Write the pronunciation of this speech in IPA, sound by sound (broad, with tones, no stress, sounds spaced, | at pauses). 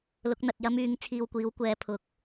l ʊ˨˥ k̚ n̪ ɐ˨ t̚ j ɐ˥ m yː˨˥ ŋ t͡sʰ iː˧ w kʷ iː˨˥ w kʷ ɛː˨˧ pʰ ʊ˨ k̚